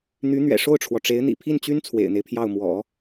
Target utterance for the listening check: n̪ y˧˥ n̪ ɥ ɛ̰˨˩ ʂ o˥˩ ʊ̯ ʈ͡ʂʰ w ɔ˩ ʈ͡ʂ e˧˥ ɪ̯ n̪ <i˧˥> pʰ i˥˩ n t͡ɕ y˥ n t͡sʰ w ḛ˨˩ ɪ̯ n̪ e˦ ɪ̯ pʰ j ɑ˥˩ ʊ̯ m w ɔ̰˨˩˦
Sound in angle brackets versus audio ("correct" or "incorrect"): incorrect